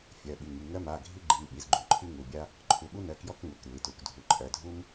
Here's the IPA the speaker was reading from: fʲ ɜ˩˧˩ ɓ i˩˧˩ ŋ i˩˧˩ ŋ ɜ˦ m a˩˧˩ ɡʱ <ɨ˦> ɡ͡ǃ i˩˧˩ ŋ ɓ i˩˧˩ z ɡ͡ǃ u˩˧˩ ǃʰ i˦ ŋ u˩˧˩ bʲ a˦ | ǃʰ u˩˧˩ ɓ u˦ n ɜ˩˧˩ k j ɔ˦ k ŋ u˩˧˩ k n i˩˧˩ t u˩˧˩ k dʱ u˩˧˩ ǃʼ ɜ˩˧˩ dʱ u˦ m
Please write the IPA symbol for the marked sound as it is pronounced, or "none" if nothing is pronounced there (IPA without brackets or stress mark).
i˦